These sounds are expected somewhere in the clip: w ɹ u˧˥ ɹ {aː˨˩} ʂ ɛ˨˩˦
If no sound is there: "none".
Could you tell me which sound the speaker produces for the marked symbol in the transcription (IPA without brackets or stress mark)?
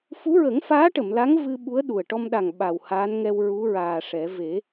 aː˨˩